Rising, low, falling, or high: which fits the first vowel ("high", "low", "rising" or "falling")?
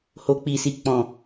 low